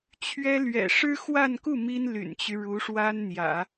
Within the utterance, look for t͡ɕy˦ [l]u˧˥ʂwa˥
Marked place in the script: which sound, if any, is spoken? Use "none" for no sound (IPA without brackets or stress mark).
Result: ɻ